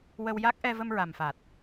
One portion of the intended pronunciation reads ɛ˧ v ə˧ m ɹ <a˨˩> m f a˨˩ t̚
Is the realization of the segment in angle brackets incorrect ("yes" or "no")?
no